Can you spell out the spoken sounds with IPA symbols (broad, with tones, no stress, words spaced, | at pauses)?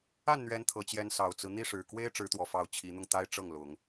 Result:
a˥˨nn̪ɥɛ˨˦n t̪ʰɤ˨˦t͡ɕjɛ˦n sɑ˨˩ʊ̯t͡sɹ̩˦ n̪i˥˨ʂɻ̩˨˩ kwe˦ɪ̯ ʈ͡ʂɻ̩˨˦t̪wɔ˨˩fɑ˨˦ʊ̯ t͡ɕʰi˨˦n̪ʊ˧ŋt̪a˦ɪ̯ ʈ͡ʂɤ˥˨ŋlʊ˨˦ŋ